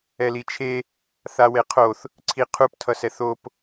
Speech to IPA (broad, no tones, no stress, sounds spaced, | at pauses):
ɛ l i t͡ʃʰ e | θ a w e qʰ o θ | ǀʰ i qʰ u p tʰ ʌ s ɛ θ o p